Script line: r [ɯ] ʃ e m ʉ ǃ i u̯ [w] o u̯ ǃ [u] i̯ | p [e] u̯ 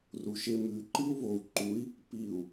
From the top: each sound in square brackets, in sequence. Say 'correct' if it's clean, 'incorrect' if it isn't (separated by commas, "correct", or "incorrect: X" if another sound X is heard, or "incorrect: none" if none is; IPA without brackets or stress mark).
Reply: incorrect: u, incorrect: β, correct, incorrect: i